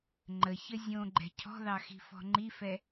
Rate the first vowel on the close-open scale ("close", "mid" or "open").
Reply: mid